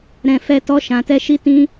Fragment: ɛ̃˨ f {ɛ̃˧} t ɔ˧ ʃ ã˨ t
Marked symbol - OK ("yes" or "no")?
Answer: no